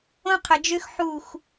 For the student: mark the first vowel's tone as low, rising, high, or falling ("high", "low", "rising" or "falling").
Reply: high